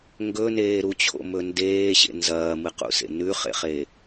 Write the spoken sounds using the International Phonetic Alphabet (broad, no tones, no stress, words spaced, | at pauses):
ŋɡɵneː ɾut͡ɕʰo̰mɵ ndeːɕḛ nzɐːmɨqṵsḛ nʉχḛχe